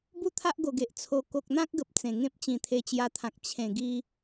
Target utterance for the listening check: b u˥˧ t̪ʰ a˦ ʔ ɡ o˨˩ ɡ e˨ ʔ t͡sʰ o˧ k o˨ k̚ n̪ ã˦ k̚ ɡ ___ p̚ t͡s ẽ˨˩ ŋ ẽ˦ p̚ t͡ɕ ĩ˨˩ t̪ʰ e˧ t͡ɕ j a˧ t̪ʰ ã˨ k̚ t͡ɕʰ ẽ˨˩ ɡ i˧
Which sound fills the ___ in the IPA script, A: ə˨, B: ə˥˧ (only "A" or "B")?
A